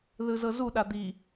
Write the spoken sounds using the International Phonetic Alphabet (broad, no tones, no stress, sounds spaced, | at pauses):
ð ɯ z ɤ z u ɗ a d̪ i